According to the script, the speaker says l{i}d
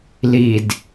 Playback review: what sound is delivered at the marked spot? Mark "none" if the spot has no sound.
i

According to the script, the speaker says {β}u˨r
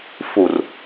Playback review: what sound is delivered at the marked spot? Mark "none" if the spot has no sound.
f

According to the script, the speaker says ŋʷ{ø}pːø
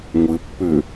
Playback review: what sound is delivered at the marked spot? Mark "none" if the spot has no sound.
ɘ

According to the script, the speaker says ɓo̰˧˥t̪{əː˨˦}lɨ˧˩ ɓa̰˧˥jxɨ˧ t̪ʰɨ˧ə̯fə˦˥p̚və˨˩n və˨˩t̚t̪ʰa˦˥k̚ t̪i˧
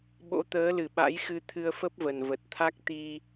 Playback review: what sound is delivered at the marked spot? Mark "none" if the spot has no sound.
əː˨˦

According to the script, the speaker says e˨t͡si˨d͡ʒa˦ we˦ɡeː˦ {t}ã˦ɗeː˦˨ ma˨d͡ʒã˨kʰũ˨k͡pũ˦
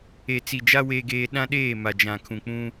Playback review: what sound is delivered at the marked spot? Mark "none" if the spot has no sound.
ɗ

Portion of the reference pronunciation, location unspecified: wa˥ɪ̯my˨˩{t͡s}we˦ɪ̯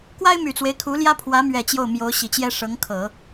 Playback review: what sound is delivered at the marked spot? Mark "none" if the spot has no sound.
t͡s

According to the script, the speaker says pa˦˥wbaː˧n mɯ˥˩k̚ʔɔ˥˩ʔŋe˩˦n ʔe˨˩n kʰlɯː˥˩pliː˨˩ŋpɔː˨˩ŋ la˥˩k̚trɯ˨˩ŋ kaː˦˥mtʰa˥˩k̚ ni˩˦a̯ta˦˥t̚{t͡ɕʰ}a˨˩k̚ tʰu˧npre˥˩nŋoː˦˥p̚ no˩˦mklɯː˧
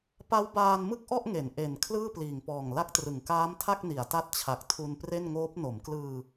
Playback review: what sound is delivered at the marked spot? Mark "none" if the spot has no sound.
t͡ɕʰ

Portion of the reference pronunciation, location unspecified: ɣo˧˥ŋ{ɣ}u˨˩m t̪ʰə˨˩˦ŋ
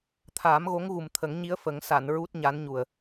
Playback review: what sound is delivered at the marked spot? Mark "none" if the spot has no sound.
ɣ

